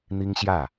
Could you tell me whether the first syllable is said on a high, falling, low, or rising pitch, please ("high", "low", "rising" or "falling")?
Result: high